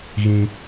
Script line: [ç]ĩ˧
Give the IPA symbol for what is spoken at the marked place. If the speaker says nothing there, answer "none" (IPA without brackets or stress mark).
ɣ